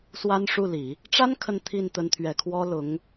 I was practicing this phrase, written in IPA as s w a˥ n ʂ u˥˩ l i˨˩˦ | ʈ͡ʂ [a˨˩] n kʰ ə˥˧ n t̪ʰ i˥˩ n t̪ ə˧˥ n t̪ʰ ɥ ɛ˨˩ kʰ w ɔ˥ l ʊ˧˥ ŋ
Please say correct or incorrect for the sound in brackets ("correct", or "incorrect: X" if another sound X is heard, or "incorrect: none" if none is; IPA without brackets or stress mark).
incorrect: a˥